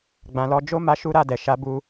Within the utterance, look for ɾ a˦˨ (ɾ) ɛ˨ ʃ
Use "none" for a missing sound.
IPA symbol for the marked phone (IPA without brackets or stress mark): d